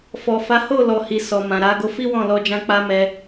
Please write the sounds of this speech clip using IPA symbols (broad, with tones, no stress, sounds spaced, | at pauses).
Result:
f ɔ˨ f a˨˦ h o˦˨ l ɔ˨ h i˨ s ɔ˨ m ã˨ ɾ a˨˦ ɡ o˧ f i˦ w ɔ̃˦˨ l ɔ˧ d͡ʒ ã˧ k͡p a˦ m ɛ˧